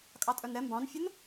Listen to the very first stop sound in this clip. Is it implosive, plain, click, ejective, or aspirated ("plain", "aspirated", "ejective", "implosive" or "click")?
ejective